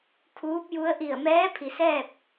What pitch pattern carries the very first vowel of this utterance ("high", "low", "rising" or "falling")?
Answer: rising